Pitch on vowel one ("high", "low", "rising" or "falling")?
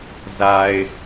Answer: low